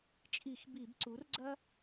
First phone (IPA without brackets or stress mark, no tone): t͡ʃʼ